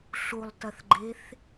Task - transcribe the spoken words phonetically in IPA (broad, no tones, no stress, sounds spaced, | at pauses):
ɬ u lˠ t ɐ θ ɡ͡ǃ e θ